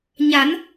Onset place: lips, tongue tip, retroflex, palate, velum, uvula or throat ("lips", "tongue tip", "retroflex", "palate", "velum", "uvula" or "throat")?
palate